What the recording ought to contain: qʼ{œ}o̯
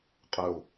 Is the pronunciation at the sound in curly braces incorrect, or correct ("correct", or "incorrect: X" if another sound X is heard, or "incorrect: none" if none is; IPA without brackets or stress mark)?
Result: correct